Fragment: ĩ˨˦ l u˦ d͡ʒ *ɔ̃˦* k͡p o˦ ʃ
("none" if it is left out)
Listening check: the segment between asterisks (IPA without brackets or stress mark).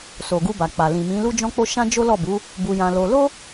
ɔ̃˦